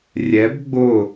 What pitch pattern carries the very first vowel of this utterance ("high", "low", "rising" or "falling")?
rising